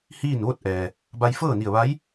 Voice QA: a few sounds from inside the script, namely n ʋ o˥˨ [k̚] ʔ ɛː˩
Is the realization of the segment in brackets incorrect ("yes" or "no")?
yes